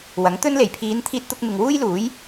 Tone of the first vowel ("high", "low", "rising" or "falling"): rising